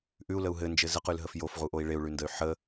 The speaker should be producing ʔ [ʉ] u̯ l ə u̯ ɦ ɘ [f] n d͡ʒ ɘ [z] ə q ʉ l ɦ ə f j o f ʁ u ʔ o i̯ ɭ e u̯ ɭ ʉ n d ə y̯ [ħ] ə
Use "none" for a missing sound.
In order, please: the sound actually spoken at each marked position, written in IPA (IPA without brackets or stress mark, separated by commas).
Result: ʉ, none, z, ħ